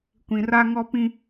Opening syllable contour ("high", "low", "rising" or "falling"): low